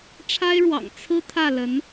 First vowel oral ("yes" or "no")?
yes